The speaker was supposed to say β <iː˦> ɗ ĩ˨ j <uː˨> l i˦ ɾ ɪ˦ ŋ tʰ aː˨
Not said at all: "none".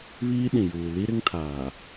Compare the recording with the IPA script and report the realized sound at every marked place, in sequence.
iː˦, uː˨

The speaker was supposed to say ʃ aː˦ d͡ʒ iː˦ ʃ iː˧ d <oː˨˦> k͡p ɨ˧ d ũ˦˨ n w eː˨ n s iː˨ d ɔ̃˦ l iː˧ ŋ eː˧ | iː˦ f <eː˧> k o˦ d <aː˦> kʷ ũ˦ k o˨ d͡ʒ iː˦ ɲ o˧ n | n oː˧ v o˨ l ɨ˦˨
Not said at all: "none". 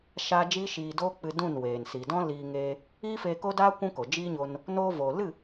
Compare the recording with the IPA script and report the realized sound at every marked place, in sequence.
oː˦, eː˧, aː˦

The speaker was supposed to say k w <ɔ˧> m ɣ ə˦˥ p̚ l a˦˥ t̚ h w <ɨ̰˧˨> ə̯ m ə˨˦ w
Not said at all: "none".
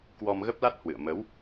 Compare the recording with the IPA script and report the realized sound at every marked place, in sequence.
ɔ˧, ɨ̰˧˨

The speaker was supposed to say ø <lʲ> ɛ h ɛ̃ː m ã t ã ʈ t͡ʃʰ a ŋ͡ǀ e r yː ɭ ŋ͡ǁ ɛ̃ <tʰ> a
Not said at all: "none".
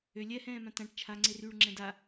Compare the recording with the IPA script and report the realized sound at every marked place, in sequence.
lʲ, d

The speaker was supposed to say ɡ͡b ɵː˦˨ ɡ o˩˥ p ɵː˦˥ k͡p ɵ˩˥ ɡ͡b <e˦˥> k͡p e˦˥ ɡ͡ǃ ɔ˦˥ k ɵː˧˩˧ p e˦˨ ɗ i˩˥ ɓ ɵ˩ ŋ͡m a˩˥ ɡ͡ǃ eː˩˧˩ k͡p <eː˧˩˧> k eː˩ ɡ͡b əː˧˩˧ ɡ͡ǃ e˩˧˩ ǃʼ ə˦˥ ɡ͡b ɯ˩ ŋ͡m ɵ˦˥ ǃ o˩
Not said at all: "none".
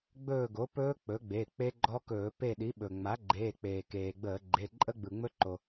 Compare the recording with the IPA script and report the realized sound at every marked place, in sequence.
e˩˧˩, eː˩

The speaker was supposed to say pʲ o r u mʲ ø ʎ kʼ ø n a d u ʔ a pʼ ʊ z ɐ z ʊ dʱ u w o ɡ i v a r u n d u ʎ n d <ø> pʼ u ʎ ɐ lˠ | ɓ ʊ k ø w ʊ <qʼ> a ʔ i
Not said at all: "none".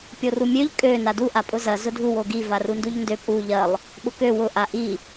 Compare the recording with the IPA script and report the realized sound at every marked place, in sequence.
ø, ʔ

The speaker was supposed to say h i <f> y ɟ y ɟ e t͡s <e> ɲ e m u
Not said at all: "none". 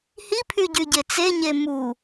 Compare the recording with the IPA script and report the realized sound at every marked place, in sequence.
pʰ, e

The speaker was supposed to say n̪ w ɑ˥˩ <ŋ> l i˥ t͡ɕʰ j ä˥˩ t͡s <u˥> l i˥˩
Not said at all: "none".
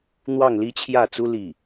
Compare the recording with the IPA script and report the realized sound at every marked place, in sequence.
ŋ, u˥

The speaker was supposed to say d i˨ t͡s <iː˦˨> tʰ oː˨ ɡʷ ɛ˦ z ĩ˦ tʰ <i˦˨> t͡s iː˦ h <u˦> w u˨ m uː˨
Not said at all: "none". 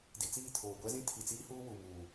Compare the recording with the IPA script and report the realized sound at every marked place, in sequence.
iː˦˨, i˨, uː˦

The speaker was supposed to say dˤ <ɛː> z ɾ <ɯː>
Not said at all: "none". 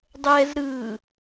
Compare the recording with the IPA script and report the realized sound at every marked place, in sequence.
ɛː, ɯː

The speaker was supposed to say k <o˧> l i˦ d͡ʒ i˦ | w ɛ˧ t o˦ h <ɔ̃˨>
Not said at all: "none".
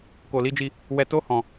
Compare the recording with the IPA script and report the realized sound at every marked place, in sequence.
o˧, ɔ̃˧

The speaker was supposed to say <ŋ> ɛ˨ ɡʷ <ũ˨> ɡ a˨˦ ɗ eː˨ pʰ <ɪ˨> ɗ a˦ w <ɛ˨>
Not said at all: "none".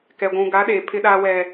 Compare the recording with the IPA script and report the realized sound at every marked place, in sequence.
k, ũ˨, ɪ˦, ɛ˦

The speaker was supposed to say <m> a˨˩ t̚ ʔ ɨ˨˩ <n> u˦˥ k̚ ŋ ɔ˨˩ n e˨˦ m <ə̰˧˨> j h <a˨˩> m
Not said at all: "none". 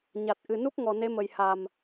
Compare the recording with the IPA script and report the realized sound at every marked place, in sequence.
ɲ, n, ə˨˩, a˨˩

